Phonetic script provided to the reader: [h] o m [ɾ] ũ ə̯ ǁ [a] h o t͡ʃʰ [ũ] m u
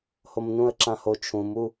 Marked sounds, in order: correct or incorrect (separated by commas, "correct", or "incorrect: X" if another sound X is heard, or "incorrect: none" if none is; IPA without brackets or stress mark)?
correct, incorrect: n, incorrect: ã, correct